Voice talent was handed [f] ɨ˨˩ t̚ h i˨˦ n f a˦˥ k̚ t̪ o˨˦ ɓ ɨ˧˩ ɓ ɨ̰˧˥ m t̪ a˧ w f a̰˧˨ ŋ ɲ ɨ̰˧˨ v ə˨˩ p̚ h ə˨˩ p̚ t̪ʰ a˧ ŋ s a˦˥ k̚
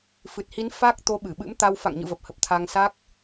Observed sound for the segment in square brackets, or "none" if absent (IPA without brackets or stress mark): f